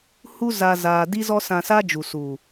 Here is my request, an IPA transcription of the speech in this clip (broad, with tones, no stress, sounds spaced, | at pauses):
h u˦ z a˧ z aː˧ d i˦ z ɔ˦ s ã˧ s a˦ d͡ʒ u˨ s u˨